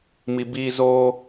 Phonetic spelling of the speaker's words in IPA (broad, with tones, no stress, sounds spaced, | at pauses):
m i˨ b iː˧ z oː˧